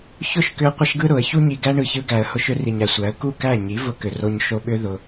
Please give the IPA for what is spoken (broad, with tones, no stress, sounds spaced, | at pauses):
ç ʊ˦˨ ʃ k ʏ˧ ə̯ qʷ ə˦ ʃ ɡ ɯ˦ ɾ ʊ˨˦ ə̯ ç u˧ ɲ i˨ ɡ æ˧ ɳ ɯ˨ ç ɯ˧ ɡ æ˨ ə̯ h ʊ˧ ʃ ʏ˦ r i˨ ɲ æ˨ sʷ æ˨˦ ə̯ k u˦˨ k æ˦˨ ɲ i˨˦ v ʊ˧ k ʏ˨ r o˧ ɲ ʃ o˧ ɓ ʏ˦ ð ʊ˧